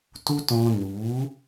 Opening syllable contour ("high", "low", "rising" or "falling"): high